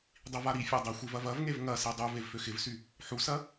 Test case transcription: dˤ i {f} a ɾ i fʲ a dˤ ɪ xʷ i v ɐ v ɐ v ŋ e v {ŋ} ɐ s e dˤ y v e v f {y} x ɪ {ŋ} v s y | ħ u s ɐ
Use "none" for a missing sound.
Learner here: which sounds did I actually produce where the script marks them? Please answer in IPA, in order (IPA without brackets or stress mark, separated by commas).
v, ŋ, ø, none